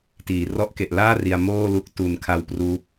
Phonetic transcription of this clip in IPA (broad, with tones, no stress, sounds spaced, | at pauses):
t iː˩˦ r ɔ˦˥ ʔ k e˨˩ ʔ l aː˥˩ r i˧ a̯ m oː˥˩ l u˦˥ k̚ t u˨˩ n kʰ a˧ w p r uː˦˥ p̚